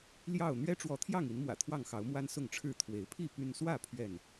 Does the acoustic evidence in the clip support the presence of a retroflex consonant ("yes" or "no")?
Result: yes